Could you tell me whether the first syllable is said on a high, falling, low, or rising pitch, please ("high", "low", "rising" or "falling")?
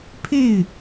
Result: falling